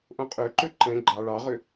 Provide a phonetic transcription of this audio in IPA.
ʔõqʼøǃø ǃɛ̃ ɡ͡ǃɑ ɭɑʁø

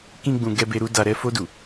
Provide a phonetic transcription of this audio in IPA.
kĩ˦ɡ͡bũ˧ ɡɛ˦be˦ ɾu˦da˧ ɾɛ˧fo˧du˨

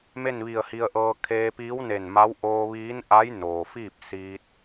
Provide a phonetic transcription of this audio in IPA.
me˥˨nʋi˧˩ə̯hi˧ə̯ʔɤː˧ kʰeː˧piː˧˥wne˧˩nma˧˥w ʔoː˧ʋiː˧˥nʔa˧˥j noː˩fiː˥˨p̚ siː˧t̚

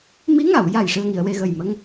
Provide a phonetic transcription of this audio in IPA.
mi˧˥ŋa˨˩˨w ja˨˩j ʂɨ˧ə̯ŋi˨˩˨ə̯we˧ɣə˨˩j mə˧ŋ

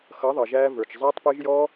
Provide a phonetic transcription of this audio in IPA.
xʌ˨˦ðˤʌ˨ ʒæː˧və˞˨t͡ʃ zˤɛː˧tˤpɪː˧ʒ jɔ˧

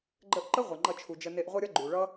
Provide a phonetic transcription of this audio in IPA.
ɡ͡ǃə˧ʔǃə˦ ʁʷʌ˨ŋ͡ǃʌ˧t͡ʃʰu˨d͡ʒə˧ ne˧ʔʁʷʌ˦ɾʲʌ˦ ɡ͡ǃu˨ɭʌ˦

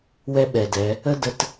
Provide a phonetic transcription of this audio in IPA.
wɛ˦ɓɛ˨dɛ˨˦ | ə˦ də˦t

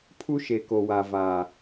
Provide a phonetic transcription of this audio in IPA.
pʰu˦ʃe˨ko˨wa˨ va˨

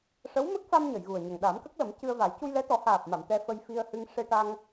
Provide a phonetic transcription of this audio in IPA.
ʂə˧˥wmə˦˥k̚fa˧m ɲə˨˩˨jɣu˨˩ə̯ɲə˨˩ŋ ɗa˨˩˦mkə˦˥k̚lə˨˩˦m cɨ˧ə̯va˨˩˦j cu˧jlɛ˧˥t̪ɔ˨˩˦ haː˨˩p̚ma˨˩˨m t̪ɛ˧fə˧jfi˧ə̯ hɨ˧ŋ ʂe˧ʈa˧ŋ

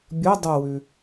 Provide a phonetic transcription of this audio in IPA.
bʲɯ dˤuwʉ

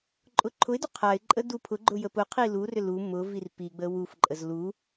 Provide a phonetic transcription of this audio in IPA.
ǃʼʊǃʰʊɪ̯dʏ qʰaɪ̯ǃʼə dupʰʊɡ͡ǃʊ jəpʊqʰi lurʏ lu mʊ virpiɡ͡bə wufǃʼəz lu

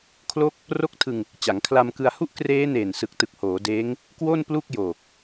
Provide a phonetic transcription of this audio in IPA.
kʰlo˥˩k̚ | ro˦˥k̚tʰɯ˧ŋ | t͡ɕa˩˦ŋkʰla˧mkɯ˧a̯hu˥˩ʔ kreː˦˥neː˨˩n sɯ˨˩k̚tɯ˨˩k̚ hoː˩˦deː˦˥ŋ | kwo˥˩n plu˥˩k̚joː˨˩k̚

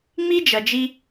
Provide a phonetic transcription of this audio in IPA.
ŋ͡mi˥ d͡ʒɐ˩d͡ʒi˥

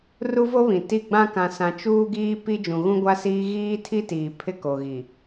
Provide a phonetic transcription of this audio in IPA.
ru˦vo˦βĩ˨ti˦˨ ɡ͡bã˦ kã˦sã˦ t͡ʃuː˦ɡiː˦pi˦ d͡ʒũ˨ɣũ˦ɡʷa˦siː˦ ɣiː˦tʰi˦tiː˨ pʰɪ˦ko˨ɣi˨

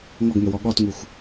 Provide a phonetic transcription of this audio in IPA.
ŋɔɡŋəwɔ ɠɔtŋuxʷ

